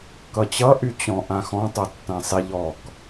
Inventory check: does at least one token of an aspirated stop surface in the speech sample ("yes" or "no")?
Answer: no